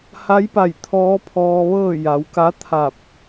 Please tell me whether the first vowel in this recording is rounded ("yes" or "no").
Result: no